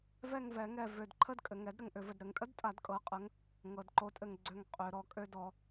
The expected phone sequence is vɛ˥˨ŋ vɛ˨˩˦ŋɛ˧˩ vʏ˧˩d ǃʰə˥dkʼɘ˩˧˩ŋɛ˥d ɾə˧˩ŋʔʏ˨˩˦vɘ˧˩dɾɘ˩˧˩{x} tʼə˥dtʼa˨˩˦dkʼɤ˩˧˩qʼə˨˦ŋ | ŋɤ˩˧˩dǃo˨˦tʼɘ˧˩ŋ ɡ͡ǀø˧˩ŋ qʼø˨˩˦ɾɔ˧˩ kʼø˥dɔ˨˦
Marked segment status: incorrect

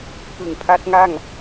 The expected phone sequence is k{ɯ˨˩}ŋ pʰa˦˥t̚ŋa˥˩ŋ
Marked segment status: correct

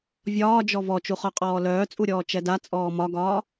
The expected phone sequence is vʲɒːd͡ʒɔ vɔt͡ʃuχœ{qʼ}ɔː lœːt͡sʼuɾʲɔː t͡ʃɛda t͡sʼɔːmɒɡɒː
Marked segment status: correct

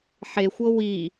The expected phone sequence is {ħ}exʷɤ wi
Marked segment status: correct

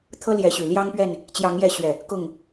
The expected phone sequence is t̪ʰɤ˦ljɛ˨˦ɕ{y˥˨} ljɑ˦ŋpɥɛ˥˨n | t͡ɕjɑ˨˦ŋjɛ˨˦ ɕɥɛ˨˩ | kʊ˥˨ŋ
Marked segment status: incorrect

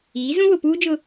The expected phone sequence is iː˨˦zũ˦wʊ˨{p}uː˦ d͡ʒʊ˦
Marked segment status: correct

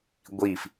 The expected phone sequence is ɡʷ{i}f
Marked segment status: correct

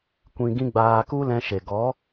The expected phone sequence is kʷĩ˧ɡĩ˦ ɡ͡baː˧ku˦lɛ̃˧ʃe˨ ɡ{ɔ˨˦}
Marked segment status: correct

